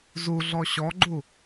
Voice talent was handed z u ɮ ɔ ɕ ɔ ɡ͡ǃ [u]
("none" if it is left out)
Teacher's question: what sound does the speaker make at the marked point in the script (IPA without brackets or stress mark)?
u